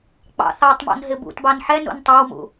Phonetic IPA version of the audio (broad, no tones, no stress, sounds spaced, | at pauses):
k͡p ɑ̰ θ ɑ tˤ m ɔ̰ n ɦ ɪ b ṵ t b ɑ n ħ ɛ n ṵ n tˤ ɑ w m ṵ